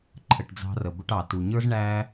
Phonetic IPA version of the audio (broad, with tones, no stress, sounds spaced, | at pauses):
ǃʰ ə˧ ʈ d͡z ɑ̤˦ r ə˧ b ʊ˦ ʈ ɑ˨ t u˨ ɲ ə˞˦ z ɳ æ˦